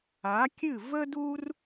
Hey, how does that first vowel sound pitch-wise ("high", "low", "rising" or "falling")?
rising